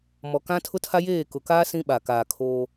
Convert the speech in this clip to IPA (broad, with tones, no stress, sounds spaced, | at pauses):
m ɔ˨ k ã˦ tʰ ʊ˦ tʰ a˦ j eː˦˨ k ʊ˨ k aː˦ s ĩ˦ ɓ a˨ k aː˨ kʰ oː˦